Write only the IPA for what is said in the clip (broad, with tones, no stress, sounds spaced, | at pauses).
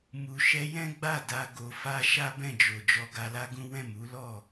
m u˧ ʃ ɛ˦ j ɛ̃˦ ɡ͡b a˦˨ d a˧ ɡ o˧ f a˦ ʃ a˦ b ɛ̃˦˨ d͡ʒ o˨ d͡ʒ ɔ˧ ɡ a˧ l a˦ ɡ ũ˦ w ɛ̃˦˨ m u˨˦ l ɔ˦˨